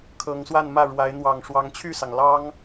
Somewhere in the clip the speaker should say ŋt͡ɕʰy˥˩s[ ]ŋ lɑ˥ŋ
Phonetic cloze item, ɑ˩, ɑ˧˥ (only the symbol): ɑ˩